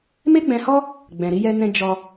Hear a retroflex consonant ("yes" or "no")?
no